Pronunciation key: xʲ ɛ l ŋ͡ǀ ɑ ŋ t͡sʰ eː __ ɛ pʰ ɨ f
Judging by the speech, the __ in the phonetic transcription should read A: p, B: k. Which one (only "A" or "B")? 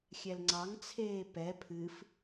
A